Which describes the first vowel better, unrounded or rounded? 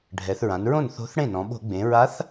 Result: unrounded